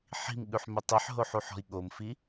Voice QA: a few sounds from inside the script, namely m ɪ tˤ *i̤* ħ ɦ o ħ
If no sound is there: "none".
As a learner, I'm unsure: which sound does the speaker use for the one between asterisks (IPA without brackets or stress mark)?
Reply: i